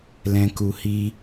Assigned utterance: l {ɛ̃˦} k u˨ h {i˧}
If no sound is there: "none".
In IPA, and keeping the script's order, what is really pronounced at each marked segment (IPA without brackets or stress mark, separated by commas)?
ɛ̃˨, i˧